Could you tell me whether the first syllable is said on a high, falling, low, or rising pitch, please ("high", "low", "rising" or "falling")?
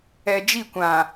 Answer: low